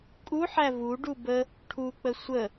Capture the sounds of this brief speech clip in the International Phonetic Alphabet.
kʼ u ħ æ v u ɖ u b ə | ʈʰ u k͡p ə sʷ ə

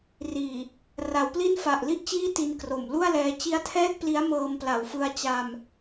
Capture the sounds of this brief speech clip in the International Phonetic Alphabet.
r iː˨˩ | r a˩˦ w p l i˥˩ n f a˨˩ ʔ l i˥˩ ʔ t͡ɕ iː˥˩ t i˧ n k r o˨˩ m l u˥˩ a̯ l ɛː˧ t͡ɕ i˦˥ a̯ tʰ ɛː˥˩ k̚ p l i˦˥ a̯ m ɤː˧ m p l a˨˩ w f ɯ˧ a̯ t͡ɕ a˧ m

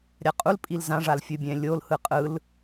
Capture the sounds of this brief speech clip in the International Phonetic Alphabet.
ɾʲ a qʼ u l pʼ i l z ã ʐ a l fʲ ɯ bʲ ɛ̃ lʲ o l h ɯ qʼ ɯ l

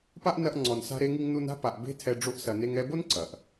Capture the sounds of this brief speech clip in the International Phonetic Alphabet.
p a˦ ʔ n ɐ˧ ʔ ŋ͡ǀ ɔ˨ n s a̤˧ ɾ e˧ ŋ i˧ ŋ n u˧ n a̤˦ p a˨ ʔ b e̤˦ tʰ ɛ˧ ɖ͡ʐ o˧ ʔ s ɐ˨ n e˧ ŋ ɛ˧ b o˦ n ǀ ɐ˨ ʔ

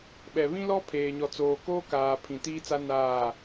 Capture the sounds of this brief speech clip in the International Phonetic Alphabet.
ɓ ɛ˨ β ĩ˦ l ɔ˦ pʰ eː˨ ɲ ɔ˨ t͡s oː˨ k oː˦ k aː˨ pʰ ĩ˨ t iː˦ t͡s a˦ n aː˦˨

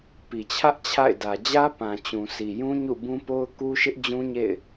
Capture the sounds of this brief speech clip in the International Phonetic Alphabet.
p i˨ t͡ɕʰ ä˦ ʔ t͡ɕʰ a̰˦˨ ɪ̯ d ä˨ d͡ʑ ä˦ p ã˨ t͡ɕ ũ˨ s i˨ j ũ˦ ɲ ṵ˦˨ b ũ˦ p o˦ ʊ̯ k u˦ ʃ ɪ˦ ʔ d͡ʑ ũ˦ ɲ ḛ˦˨ ɪ̯

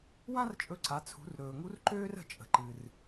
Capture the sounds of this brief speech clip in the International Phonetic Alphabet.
w ã˥ r t͡ʃʼ ɵ˧ ǀ a˩˧ t͡sʰ ṳ˩˧ r ɾ ɵː˩ ŋ u˧˥ r ǃ øː˥ r ə̤˧ t͡ʃʼ ə̤˩ ǃ ɨ˩ r

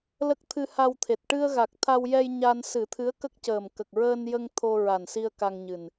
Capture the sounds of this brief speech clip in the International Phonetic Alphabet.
l ə˦˥ k̚ t̪ʰ ɨ˧ h a˧ w t̪ʰ e˨˩ t̚ ʈ ɨ˧ ə̯ ɣ a˨˩ k̚ t̪ʰ a˧ w j ɛ˧ j ɲ a˧ n s ɨ˨˩˦ t̪ʰ ɨ˧˥ ə̯ k ə˦˥ k̚ c əː˨˩ m k ə˨˩ k̚ ɹ əː˧ n j ə˧ ŋ t̪ʰ o˧ ɹ a˨˩ n s i˧ ə̯ k a˧ ŋ ɲ ɨ˨˩ n

